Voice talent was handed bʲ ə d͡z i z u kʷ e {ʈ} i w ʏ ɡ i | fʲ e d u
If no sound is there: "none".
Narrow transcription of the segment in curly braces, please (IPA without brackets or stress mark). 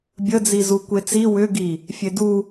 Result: t͡s